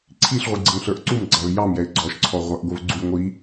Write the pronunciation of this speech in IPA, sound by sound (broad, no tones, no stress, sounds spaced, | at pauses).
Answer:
ǀʰ i ɬ ʁʷ i ɡ͡ǀ ə ŋ ɬ ə˞ ʔ ǀ u m ɡ͡ǀ ɑ v j ɑ m j ɛ ɪ̯ ɡ͡ǀ ɔ ʃ ǀʰ ɔ ʁʷ æ ʔ ɡʷ ə v ɡ͡ǀ u j ŋʷ i